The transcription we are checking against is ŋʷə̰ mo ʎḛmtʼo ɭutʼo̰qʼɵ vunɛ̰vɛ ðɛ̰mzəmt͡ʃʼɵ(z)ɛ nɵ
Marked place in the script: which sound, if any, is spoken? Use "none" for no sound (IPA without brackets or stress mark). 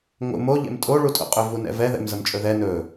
ð